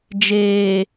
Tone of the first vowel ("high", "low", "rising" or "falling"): low